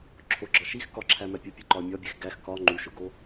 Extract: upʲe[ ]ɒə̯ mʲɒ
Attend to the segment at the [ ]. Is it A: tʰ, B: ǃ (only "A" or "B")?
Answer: B